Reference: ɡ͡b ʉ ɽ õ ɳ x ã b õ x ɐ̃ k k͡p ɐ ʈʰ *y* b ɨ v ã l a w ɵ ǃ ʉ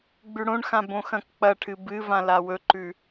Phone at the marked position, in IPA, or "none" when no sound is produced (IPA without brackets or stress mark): ɨ